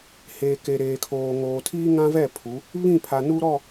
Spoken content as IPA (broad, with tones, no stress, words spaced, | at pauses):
heː˨ ke˨ɾeː˨kʰoː˨ ŋoː˨tʰiː˦ŋã˦vɛ˦˨ pʰu˨˦ | βĩ˦˨pʰa˨ nu˦ɾɔ˦˨